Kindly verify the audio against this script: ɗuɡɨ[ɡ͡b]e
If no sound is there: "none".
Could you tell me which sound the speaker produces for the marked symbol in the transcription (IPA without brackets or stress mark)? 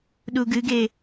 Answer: ɡ